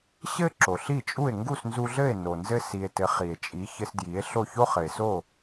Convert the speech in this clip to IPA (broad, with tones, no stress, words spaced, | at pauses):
ɕɘ˥ ǁo˩ɬi˥˩t͡ʃʼu˥˩e̯ ŋɡu˥˩snzu˧ɮɘ˥˩e̯ no˩nzɘ˧ si˩e̯ tɘ˩˥ χi˩e̯ t͡ʃʼi˩˥ çɘ˧sdji˩˥e̯ ɬo˥˩ço˥χɘ˩e̯so˥˩